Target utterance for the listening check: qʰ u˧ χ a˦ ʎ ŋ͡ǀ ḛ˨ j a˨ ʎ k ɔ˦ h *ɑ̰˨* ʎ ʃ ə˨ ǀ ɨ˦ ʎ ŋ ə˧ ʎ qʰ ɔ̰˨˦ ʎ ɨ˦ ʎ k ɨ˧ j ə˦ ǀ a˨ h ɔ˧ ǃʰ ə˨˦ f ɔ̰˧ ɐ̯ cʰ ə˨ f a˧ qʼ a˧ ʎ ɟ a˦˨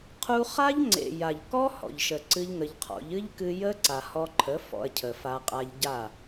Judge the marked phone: incorrect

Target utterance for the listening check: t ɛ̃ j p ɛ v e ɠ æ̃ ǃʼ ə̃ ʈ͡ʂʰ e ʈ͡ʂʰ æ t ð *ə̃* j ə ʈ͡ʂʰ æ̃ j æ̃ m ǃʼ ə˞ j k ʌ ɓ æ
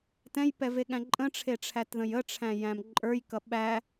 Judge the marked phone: correct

